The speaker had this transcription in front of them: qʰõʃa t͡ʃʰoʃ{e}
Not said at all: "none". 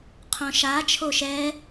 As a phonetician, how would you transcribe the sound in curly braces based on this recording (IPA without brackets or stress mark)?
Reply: ɛ